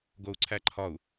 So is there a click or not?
yes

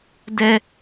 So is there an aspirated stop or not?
no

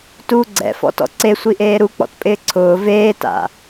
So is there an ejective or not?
yes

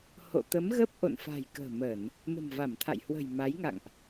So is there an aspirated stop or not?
yes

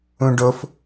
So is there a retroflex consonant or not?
yes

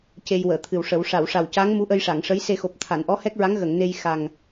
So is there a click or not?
no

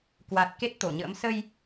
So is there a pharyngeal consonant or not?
no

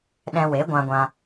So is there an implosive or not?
yes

